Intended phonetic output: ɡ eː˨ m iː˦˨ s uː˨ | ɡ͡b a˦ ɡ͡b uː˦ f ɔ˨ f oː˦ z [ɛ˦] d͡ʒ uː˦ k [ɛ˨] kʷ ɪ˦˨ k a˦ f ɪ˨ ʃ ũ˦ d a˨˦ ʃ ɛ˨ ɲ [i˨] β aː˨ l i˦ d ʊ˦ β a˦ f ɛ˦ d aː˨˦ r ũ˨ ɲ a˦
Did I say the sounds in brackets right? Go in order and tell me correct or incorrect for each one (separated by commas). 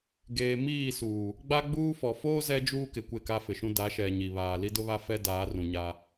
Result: correct, incorrect, correct